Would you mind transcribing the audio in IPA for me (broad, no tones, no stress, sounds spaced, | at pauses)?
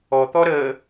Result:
ɔ t̪ ɔ ɾ ə